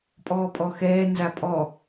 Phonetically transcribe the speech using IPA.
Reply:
pʼɔːpʼɔxɛː nzapʼɔ

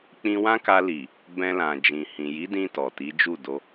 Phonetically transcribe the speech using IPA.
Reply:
k͡pĩ˦ wã˦ka˧li˨ | bɛ̃˧lã˨d͡ʒĩ˨ hĩ˨ji˨˦dĩ˧ tɔ˨ti˨˦ d͡ʒu˦˨do˧

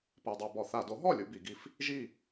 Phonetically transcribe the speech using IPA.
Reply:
pɛ˧dˤa˧ bɔ˧˩˧θa˧˩˧ do˩˥ɦɔ˥˨lʲu˧ bi˩˧ɡi˧f | ʒi˥˨

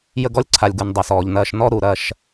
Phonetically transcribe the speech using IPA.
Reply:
jə˦ɡɔ˦lʲǀʰa˨lʲɡu˨n dˤɐ˨sɔː˨ʎnɐː˦ʃ nɔ˦ ɾu˨ɾɐ˦ʃ

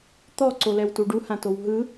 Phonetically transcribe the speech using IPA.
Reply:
t̪ɔ ǀolɛwtuɖu hãtowɦɯ

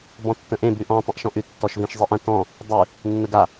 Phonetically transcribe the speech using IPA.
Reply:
bɔ̃tːə̃ʔẽ bʉʔɔ̃ tˤə̃ʔʃɔ̃ʔʉ tːɔʃvĩʃzˤeʔə̃ tɔ̃ | dˤʉ | nːəɡa

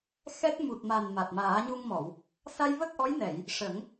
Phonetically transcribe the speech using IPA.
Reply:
xɛ˦˥t̚ mu˨˩t̚ma˨˩n ma˨˩t̚maː˨˩˦ɲu˧ŋmɔ˨˩˨w | sa˧jvə˦˥k̚ʔɔ˧˥jnɛ˨˩˨j | ʂə˨˩˦ŋ

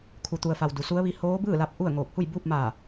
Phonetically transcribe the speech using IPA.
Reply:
kʰu˩t̪u˩ə̯fa˩w du˩˧su˧˥ə̯ʋi˧˥ hoː˧˥bɯː˥˨la˧p̚ ʔu˥˨ə̯ ŋoː˧˩k̚hu˥˨jbuː˥˨p̚ maː˧˩

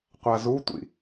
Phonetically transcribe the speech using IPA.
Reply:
qʷazutʷḭ

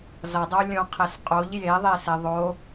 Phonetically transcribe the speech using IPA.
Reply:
zʌdˤo lʲõqʰes qʼoʎ jeðˤese ðˤo

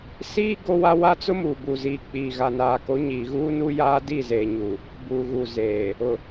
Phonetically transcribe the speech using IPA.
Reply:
siː˦ ɡo˦wa˦ wa˦t͡sʊ˦ muː˨buː˨ziː˨ k͡piː˨ ɣa˨naː˨ko˨˦ ɲiː˨ɣuː˦nu˦jaː˦ di˦˨zeː˨ɲu˨ | buː˨ɣuː˨zeː˨ | ʊ˨

